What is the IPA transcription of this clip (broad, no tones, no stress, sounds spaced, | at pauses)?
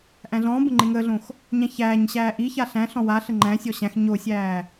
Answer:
ʔ æ̃ ɮ ɔ̃ː b ə̃ ŋ͡ǃ e ŋ əː ɮ õ x | ɲ æ̃ ç æː ɲ ɕ æː ʔ i ç a ɬ æ̃ ɬ ɔ̃ w a ɬ ə ŋ͡ǃ æ̃ sʲ ɔ ɕ æ̃ x ɲ o sʲ æː